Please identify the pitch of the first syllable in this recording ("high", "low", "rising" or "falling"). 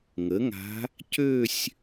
rising